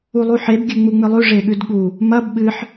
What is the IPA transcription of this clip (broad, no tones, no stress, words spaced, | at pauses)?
ulˠuħeb ɡʲʉŋ͡muŋ͡mɨlˠʉ ʐeɠʉdɠu | mɐb ɓɨħ